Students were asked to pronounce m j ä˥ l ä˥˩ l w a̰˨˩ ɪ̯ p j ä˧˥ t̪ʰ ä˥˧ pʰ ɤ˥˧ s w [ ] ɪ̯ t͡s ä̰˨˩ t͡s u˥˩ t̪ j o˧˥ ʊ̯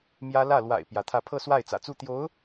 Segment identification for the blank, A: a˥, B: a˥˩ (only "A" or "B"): B